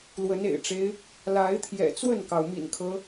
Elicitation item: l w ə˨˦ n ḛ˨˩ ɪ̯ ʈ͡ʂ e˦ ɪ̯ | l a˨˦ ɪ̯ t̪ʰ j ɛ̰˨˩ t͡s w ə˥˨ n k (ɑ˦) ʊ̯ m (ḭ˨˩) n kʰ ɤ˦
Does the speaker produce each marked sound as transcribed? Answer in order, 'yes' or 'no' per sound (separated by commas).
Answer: no, yes